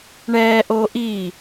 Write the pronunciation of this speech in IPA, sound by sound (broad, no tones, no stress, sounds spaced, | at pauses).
ɳ ɛː ʔ oː ʔ iː